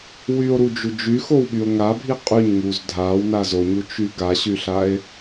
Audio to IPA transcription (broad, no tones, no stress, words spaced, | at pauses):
wyo̯ɾud͡ʒu d͡ʒyxowɓyo̯ ŋabʱi qʼyɲŋuz dʱawnaz oɲut͡ʃy ɡaɕyɬae̯